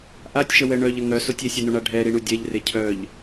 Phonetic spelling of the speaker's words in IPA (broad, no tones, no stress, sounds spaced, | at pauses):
ʔ a tʲ ʃ ə w ɛ ɳ œ ʎ ə ŋ œ s o tʲ e sʲ ɛ n o ɳ a ɖʱ ɛ ɾ i ɳ u dʲ ɛ ʎ r e cʰ œ ʎ